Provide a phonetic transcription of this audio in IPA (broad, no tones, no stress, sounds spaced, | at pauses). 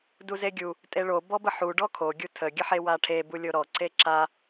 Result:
d u z e ɡʲ u | tʼ e ɭ o b ɔ b ə ħ u ɖ ɔ kʰ o ɡʲ u tʰ ə ɡʲ ə ħ e w a ʈʰ e b u lʲ o ɾ ɔ ǀ e ǁ a